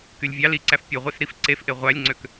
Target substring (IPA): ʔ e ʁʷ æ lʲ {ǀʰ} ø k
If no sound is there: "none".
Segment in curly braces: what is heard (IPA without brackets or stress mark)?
ŋ͡ǀ